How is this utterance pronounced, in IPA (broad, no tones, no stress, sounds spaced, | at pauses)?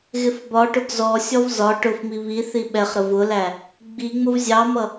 ɣ ɪ f b ɒ ʈ ʊ ɡ z ɔ sʲ ɔ v z ɒ ʈ ʊ f m i β i θ i ɓ ɛ χ ɾ ə v ʊ l æ | ɡ͡b i ŋ͡m ʊ v zʲ ɑ m ʌ